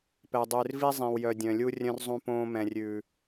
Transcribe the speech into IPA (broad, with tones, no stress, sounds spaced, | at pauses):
p ɛ˨ dˤ ʉː˨ r v i˦ zˤ ĩ˨ w j œ˨ dʲ œ̃˨ lʲ u˦ rʲ œ̃˦ r zˤ ũ˦ p õː˦ m ɛ̃˨ rʲ ʉː˨